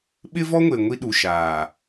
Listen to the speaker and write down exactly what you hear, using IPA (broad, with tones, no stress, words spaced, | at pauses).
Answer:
ɓɪ˦vɔ˦ŋʷe˨ ŋʷi˦ɗu˨ʃaː˨